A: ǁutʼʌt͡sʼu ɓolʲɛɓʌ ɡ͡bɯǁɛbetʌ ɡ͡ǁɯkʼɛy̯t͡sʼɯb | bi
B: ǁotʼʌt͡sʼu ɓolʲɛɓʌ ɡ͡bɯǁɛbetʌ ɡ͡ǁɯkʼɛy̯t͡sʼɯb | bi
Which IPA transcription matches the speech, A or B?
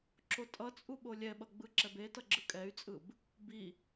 B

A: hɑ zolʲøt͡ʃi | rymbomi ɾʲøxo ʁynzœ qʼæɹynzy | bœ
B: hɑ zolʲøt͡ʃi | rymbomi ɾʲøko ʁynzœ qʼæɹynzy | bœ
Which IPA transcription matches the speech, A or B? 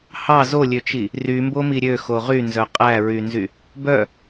A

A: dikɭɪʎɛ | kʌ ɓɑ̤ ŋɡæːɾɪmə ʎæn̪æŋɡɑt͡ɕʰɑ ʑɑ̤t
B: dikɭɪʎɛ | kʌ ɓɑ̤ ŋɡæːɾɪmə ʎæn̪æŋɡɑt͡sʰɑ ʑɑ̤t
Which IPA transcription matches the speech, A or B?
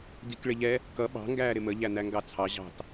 B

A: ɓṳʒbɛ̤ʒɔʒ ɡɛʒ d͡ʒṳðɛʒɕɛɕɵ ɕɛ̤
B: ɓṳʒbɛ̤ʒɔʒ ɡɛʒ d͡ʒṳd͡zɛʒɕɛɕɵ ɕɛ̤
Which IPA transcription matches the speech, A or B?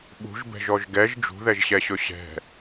A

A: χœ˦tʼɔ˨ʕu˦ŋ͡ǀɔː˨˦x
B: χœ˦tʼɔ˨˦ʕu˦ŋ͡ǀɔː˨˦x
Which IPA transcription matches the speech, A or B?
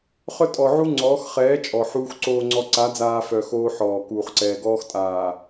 A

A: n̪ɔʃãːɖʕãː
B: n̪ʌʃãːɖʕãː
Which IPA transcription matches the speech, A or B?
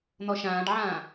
A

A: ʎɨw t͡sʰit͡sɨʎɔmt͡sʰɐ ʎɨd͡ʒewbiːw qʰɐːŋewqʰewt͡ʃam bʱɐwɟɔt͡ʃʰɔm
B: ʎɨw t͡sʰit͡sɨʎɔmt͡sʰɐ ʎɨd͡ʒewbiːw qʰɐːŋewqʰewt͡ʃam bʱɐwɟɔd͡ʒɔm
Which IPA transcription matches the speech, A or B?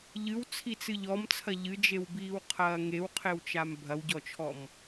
A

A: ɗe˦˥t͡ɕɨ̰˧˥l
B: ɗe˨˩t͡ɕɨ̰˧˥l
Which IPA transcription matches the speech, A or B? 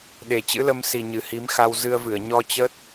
B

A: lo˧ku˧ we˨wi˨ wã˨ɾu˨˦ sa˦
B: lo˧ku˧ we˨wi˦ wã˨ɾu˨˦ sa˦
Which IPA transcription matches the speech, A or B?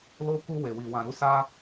A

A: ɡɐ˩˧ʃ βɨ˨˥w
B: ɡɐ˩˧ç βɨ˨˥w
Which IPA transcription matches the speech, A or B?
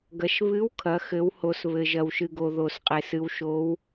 A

